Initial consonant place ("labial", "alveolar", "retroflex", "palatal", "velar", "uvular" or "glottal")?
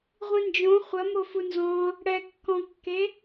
uvular